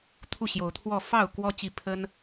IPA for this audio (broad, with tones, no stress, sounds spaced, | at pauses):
t̪ʰ u˥˨ ɕ j o˨˦ ʊ̯ t̪ʰ w ɔ˥˨ f ɑ˥˨ ʊ̯ k w ɔ˦ t͡ɕ i˥˨ pʰ ə˦ n